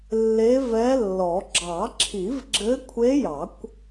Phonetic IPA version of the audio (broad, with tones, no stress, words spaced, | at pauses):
lːe˧˥vɛ˧˥lːɔ˨˩˦ ɡ͡ǁɑ˨˩˦ǁʰi˨˩˦v ɡ͡ǁɘ˧˥kʷʰe˧˥jɑ˨˩˦kʷ